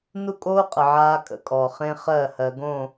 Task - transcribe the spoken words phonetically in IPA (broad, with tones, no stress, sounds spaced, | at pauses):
n u˦ kʼ oː˦ qʼ ə˨ ʕ aː˦ kʼ ə̰˦ kʼ ɔ˨ χ ẽ˦ χ ɜ˦˨ h ɜ˨ ɡ õ˦˨